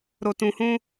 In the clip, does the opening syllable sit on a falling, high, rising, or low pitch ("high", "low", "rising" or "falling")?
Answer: low